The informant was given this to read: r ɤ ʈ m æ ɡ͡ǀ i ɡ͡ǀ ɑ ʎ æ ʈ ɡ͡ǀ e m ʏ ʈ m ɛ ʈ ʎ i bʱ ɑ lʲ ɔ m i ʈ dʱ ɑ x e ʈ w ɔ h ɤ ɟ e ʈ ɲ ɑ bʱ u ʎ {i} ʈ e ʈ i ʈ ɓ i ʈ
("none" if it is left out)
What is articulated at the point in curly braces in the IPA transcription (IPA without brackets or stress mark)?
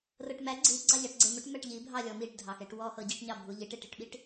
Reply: i